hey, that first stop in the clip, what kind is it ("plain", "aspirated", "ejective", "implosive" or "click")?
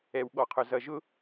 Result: implosive